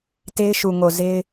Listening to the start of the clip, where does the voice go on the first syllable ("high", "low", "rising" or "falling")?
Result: high